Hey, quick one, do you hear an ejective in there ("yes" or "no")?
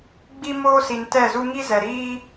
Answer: no